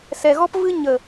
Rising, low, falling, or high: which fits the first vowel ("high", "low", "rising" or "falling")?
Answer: low